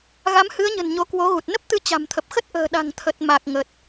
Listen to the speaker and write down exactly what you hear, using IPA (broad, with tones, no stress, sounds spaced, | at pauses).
ɣ a˨˦ m h ɨ˨˦ ə̯ ɲ ə̤˨˩ n ɲ o˨˦ k w o˨˦ ɣ u˨˩ t̚ n ə˦˥ p̚ t̪ ɨ˧ t͡ɕ a̤˨˩ m t̪ʰ ə˨˩ p̚ x ə˦˥ t̚ ʔ ə̤ː˨˩ ɗ a̤˨˩ ŋ t̪ʰ ə˨˩ t̚ m a˨˩ k̚ ŋ ə˨˩ t̚